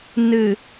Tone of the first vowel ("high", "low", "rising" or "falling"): low